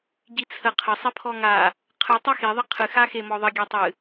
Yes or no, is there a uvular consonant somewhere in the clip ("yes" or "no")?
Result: yes